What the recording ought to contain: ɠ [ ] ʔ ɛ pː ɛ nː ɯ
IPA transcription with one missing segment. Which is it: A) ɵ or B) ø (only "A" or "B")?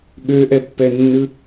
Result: B